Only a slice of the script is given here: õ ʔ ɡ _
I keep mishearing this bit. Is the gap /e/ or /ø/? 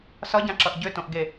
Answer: e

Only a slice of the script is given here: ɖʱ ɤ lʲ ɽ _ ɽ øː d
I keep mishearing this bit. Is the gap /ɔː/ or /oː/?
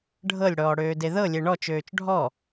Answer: ɔː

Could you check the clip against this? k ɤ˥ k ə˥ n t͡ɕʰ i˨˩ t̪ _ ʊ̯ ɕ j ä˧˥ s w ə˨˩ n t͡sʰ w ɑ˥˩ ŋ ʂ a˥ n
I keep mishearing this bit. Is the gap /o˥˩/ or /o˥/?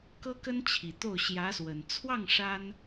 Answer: o˥˩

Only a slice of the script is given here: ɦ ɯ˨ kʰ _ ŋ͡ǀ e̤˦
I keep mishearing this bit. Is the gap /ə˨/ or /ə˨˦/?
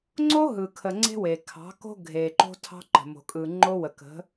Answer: ə˨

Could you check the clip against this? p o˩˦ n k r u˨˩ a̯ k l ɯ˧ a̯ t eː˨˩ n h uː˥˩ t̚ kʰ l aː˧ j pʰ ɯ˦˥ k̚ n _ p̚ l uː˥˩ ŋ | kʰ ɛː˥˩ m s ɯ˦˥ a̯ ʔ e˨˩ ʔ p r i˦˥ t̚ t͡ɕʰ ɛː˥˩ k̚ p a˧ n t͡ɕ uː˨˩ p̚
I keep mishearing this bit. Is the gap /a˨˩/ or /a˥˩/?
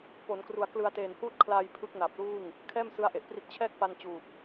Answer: a˨˩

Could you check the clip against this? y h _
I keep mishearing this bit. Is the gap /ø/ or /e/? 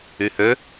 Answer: ø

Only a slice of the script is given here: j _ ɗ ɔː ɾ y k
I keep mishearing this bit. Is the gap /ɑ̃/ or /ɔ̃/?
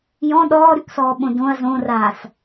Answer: ɔ̃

